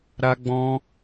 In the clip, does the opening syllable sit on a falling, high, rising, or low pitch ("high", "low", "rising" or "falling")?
high